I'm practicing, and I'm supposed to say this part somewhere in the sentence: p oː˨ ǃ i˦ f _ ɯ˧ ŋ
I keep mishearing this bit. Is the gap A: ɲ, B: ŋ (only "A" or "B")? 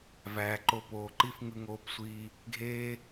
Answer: B